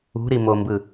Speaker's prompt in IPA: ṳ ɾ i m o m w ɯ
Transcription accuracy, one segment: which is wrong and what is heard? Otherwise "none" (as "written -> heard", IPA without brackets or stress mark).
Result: w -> b